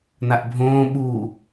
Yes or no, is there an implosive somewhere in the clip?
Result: yes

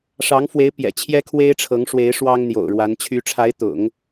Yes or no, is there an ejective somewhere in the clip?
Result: no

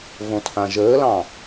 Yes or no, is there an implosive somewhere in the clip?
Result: no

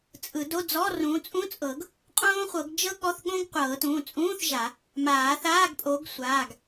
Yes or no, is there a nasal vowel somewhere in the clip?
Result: yes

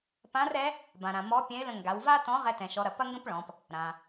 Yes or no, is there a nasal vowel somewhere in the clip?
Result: yes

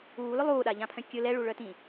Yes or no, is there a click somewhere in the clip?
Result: no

